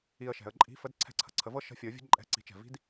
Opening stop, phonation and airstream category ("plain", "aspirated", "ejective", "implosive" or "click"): click